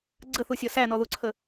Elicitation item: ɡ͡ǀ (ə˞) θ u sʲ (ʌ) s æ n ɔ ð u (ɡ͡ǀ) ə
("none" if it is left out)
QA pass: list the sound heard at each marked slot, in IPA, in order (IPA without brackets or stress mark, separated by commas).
ə, ʌ, ǀʰ